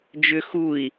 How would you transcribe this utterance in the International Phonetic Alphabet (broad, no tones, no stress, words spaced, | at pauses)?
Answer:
d͡ʒʏ xui̯